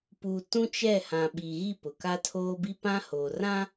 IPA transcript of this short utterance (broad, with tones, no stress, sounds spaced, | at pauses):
p u˨ t ũ˦ t͡ʃ ɛ˦˨ h ã˨ ɓ i˨ ɣ i˦˨ p ʊ˨ k a˦ tʰ oː˦ b i˦ p ã˦ h oː˨ r ã˦